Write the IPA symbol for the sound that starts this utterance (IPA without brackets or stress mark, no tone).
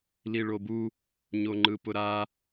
l